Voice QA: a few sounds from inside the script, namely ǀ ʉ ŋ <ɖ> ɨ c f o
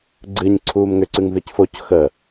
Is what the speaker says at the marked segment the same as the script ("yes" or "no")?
no